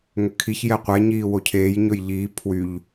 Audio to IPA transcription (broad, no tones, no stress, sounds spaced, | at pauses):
ŋ ʏ kʰ i ç j ɛ qʷ ɛ ɲ iː w o cʰ eː j ɲ ɵ j ʎ iː pʰ w y ʎ